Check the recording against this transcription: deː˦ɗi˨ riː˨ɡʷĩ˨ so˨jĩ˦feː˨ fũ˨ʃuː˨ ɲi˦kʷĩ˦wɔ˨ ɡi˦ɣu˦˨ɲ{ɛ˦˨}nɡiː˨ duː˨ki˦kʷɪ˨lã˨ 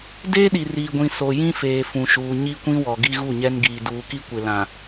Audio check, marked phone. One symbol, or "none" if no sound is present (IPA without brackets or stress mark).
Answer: ɛ˦